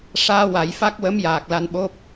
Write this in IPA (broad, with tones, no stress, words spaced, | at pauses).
ʂaː˧ wa˨˩˦jfa˦˥k̚wə˧˥m jaː˨˩k̚la˧nɓo˦˥p̚